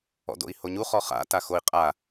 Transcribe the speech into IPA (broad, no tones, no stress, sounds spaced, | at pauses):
ɔ̰ d o̰ i̯ h o ɲ u χ ɔ χ a̰ t a x o i̯ qʼ a